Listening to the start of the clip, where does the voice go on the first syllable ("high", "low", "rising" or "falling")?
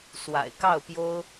low